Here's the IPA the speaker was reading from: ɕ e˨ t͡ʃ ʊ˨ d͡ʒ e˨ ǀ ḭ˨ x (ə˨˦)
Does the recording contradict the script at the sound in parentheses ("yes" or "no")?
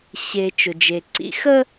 yes